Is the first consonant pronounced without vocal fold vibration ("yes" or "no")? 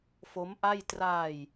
yes